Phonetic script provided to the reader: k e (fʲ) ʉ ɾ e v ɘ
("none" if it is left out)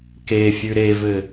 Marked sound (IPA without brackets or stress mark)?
fʲ